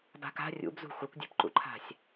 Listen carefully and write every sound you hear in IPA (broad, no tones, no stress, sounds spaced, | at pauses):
b a̤ k a̤ rʲ ṵ b z ṳ xʷ ɐ kʷ dʲ e̤ p ǃ ṵ ǃʰ a̤ sʲ